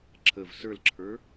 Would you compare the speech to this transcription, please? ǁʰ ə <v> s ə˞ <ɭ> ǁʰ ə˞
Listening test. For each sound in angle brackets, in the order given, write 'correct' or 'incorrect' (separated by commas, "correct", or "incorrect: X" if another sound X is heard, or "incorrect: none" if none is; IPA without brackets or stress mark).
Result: correct, incorrect: l